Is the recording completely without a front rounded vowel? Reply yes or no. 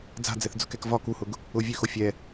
no